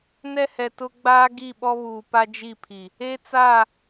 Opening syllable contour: high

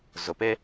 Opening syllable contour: low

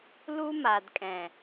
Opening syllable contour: high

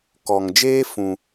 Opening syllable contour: low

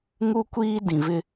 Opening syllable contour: high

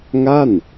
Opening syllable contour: falling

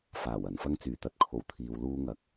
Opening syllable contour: low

